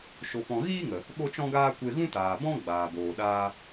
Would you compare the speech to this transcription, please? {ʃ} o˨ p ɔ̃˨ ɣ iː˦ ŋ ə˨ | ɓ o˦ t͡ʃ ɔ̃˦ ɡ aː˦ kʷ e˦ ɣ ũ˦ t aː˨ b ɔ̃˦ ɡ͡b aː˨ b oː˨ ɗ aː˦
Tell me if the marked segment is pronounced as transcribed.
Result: yes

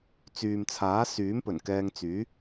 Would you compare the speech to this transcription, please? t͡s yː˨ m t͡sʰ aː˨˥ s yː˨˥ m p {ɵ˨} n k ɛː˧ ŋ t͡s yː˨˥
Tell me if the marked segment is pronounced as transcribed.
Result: no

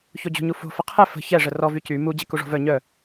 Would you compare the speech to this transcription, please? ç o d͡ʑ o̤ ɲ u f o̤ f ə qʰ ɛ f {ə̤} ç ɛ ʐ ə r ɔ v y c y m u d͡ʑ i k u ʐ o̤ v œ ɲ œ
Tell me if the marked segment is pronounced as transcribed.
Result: yes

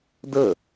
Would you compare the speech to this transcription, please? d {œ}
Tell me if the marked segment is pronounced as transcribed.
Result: no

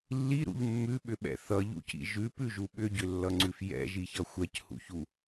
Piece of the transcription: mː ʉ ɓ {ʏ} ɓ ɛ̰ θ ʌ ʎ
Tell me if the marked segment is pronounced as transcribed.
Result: yes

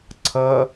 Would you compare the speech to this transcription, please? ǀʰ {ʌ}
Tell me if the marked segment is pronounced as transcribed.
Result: yes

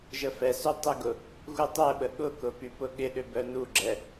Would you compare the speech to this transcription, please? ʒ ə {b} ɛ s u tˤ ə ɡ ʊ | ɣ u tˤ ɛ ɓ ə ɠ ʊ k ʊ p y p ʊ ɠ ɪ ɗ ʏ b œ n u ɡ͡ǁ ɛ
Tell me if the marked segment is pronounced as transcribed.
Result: no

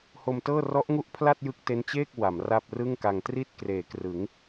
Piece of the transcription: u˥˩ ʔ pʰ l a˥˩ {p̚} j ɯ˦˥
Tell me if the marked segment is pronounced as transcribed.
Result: no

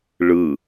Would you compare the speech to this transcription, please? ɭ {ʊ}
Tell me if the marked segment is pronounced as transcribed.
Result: no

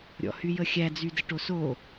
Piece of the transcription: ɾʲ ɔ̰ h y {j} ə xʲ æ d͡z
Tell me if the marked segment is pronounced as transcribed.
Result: yes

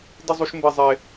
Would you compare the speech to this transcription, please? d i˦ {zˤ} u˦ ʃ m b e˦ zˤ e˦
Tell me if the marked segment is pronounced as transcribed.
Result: yes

